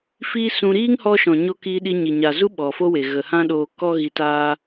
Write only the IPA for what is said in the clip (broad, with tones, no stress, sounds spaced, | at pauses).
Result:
f iː˧ s ũ˧ ɾ iː˦ ŋ h ɔ˧ ʃ ɔ̃˨ ɲ o˧ k iː˧ ɗ i˧ ɲ i˨ ɲ a˨ z u˦ ɓ ɔ˨ f o˦ w e˨ ɣ ə˨ h ã˦ ɗ oː˧ k ɔ˦ ɣ i˧ t aː˦